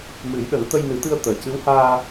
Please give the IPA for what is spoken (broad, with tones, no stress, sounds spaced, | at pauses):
m ɨ˨˩˦ j ɗ ə˨˩˦ ŋ t̪ ə˧ j n ɨ˨˩˦ t̪ ɨ˧ ə̯ t̪ əː˨˩ c ɨ˧˥ w h aː˧